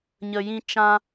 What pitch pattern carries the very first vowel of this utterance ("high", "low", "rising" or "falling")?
low